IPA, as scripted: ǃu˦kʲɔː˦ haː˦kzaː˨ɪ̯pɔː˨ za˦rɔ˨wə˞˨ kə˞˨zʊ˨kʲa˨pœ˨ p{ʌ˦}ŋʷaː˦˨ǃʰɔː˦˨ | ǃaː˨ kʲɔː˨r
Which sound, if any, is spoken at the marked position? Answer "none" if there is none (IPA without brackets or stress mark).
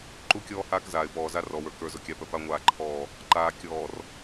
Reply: a˦